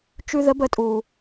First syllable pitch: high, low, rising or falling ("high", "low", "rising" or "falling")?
high